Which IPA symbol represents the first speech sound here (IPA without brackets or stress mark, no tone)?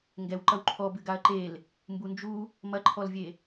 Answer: ŋ